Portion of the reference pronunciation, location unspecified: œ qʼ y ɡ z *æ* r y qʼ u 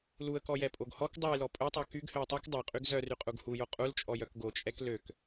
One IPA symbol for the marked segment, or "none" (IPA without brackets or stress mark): œ